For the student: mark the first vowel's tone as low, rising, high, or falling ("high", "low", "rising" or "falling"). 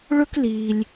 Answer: high